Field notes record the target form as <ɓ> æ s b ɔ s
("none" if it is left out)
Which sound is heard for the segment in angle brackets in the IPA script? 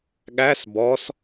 ɠ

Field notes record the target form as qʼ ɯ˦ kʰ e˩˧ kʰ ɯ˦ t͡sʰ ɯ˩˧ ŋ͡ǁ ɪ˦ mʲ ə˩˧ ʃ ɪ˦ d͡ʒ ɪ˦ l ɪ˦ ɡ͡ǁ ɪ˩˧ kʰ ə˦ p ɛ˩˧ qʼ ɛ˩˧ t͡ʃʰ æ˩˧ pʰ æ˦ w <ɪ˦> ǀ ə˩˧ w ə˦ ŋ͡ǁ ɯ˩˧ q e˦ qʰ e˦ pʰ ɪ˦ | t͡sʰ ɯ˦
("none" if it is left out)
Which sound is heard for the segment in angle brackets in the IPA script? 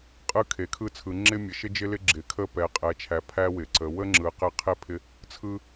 ɪ˩˧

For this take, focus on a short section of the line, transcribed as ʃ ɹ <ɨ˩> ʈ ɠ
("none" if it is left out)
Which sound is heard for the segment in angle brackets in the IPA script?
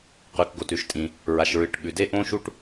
ɨ˩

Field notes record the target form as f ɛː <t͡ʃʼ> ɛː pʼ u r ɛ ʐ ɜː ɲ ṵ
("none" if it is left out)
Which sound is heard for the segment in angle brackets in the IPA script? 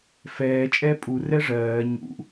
t͡ʃʼ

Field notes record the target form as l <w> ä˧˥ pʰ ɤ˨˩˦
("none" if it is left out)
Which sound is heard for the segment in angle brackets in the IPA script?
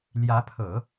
j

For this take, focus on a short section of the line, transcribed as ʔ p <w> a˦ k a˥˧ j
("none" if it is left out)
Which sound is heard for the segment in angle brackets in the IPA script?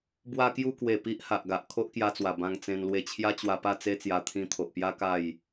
j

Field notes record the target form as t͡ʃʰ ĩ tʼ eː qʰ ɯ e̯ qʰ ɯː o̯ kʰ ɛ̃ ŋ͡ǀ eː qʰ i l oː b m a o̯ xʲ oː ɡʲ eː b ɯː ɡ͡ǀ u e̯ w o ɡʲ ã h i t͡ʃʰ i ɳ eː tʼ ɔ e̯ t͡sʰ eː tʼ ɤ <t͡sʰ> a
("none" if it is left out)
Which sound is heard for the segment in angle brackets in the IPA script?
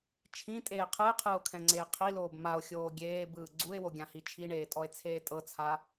t͡sʰ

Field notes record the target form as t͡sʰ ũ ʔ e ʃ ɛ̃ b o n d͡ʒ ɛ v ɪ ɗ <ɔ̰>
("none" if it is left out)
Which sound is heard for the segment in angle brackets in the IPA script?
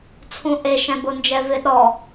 ɔ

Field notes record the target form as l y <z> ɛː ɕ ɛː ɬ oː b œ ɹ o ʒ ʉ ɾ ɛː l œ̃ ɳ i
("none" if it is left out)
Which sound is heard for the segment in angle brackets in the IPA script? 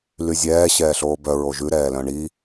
zʲ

